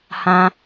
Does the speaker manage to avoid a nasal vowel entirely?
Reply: no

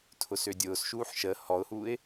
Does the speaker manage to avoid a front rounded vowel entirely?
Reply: no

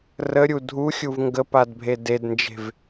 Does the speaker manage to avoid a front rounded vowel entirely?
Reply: yes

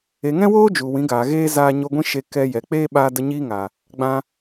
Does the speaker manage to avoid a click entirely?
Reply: yes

